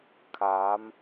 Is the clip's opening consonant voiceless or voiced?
voiceless